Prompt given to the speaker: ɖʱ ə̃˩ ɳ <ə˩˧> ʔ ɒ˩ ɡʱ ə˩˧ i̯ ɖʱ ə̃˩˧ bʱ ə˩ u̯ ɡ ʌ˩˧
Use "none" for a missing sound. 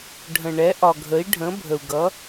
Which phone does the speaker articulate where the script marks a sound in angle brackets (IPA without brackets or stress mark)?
ɛ˩˧